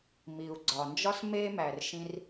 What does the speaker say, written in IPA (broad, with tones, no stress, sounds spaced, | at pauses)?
m i˩ u̯ ɡ͡ǀ ɒ˩ n d͡ʒ ɒ˥ s m e˥ m æ˩ r ʃ ĩ˧ r